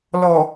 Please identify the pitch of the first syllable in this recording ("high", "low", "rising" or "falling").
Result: low